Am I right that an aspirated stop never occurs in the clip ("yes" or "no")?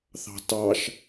yes